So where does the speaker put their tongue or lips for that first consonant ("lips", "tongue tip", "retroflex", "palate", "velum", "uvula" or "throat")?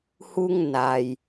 throat